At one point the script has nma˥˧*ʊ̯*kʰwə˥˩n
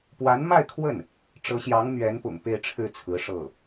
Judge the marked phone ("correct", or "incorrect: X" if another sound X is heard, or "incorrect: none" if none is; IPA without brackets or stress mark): incorrect: ɪ̯